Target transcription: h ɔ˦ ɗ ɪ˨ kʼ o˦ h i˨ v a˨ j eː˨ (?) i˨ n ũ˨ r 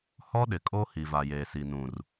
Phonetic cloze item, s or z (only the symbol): s